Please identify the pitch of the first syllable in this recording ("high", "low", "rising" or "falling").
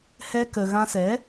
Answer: high